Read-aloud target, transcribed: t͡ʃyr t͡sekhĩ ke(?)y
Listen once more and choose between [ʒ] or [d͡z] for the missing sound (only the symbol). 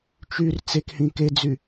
d͡z